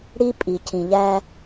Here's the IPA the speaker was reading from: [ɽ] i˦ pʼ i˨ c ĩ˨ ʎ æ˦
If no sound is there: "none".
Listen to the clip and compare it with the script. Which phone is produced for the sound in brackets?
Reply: ɽ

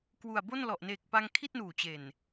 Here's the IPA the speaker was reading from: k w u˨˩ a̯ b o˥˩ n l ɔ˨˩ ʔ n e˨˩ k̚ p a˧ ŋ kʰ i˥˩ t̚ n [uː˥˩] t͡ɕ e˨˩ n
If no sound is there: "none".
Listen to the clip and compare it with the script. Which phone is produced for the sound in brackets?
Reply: uː˨˩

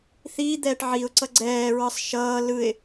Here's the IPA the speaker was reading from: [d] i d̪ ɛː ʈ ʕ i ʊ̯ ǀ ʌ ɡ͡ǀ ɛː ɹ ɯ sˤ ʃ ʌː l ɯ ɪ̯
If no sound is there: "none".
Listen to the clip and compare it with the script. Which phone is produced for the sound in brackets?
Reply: θ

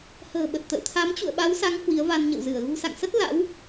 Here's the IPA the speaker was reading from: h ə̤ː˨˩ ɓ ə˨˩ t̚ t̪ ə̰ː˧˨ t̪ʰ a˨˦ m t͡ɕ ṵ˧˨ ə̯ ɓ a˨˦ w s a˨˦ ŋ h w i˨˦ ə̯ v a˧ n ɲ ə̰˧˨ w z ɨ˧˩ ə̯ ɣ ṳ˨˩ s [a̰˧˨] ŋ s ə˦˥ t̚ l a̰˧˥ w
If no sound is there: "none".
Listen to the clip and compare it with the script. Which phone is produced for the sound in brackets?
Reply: a̰˧˨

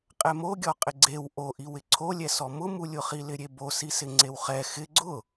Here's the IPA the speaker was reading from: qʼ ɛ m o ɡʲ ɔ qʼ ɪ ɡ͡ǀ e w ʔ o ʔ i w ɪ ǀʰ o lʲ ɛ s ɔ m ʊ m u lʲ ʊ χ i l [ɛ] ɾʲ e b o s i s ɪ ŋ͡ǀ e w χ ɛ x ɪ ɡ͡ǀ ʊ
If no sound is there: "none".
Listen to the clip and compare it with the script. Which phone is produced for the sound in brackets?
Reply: ɪ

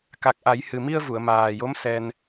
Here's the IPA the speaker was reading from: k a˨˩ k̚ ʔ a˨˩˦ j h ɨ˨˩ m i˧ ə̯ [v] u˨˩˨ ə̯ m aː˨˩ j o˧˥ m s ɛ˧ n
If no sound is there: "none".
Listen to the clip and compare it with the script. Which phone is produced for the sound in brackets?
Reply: v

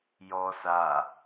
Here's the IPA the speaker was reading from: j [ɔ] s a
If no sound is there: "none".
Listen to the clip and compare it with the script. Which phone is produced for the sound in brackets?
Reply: ɔ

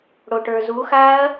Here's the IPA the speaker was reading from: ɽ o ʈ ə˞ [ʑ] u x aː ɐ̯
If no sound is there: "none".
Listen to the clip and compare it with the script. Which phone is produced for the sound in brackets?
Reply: z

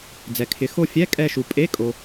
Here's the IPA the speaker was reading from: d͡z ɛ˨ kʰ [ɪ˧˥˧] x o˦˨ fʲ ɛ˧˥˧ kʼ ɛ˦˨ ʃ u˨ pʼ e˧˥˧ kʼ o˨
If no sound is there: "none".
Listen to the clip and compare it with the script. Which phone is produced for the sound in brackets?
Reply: ɪ˨˦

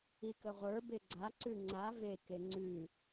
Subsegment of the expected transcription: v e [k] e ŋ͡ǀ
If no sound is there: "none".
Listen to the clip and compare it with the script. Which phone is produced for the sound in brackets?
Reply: k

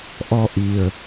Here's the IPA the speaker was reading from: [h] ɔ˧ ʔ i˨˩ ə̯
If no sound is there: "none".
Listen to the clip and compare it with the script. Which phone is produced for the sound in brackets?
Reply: ʔ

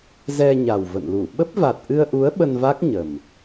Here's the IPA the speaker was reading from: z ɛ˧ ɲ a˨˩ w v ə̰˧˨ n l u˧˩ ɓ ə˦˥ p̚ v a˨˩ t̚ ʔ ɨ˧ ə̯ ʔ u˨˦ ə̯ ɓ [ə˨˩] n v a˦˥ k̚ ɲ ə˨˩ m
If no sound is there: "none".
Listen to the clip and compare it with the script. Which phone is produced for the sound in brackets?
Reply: ə˧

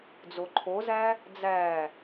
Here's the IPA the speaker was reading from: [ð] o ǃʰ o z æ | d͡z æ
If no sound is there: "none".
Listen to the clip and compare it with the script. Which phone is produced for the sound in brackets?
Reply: d͡z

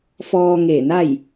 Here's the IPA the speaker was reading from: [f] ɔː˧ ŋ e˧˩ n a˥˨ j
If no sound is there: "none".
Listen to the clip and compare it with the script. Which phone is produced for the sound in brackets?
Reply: f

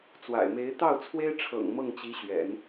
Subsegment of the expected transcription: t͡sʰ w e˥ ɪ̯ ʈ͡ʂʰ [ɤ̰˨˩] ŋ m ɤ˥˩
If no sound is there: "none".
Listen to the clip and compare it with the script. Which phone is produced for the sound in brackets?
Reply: ɤ̰˨˩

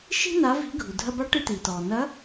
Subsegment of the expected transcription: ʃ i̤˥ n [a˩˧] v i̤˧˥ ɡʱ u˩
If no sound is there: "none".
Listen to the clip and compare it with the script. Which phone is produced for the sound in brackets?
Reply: a˧˥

